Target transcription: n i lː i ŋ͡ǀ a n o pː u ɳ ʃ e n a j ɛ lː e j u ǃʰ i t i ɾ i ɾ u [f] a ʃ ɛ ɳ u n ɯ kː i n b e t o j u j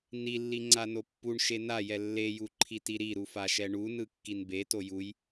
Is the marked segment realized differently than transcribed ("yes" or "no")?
no